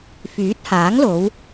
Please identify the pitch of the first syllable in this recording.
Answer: rising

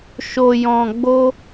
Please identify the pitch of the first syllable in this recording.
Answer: low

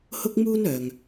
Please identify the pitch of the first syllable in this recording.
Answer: high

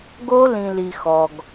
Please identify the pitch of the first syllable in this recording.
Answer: high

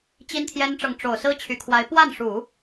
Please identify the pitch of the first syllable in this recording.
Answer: high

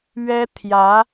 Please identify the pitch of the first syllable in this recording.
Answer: high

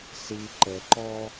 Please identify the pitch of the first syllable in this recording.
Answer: low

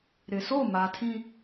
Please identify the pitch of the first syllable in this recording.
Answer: low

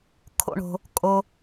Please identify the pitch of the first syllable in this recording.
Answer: low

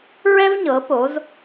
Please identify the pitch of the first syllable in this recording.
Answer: high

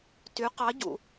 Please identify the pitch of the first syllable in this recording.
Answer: rising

